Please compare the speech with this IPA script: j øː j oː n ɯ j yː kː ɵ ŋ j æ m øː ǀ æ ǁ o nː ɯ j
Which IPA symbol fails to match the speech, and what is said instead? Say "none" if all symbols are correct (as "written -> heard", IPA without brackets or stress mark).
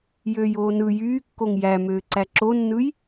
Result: ɵ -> o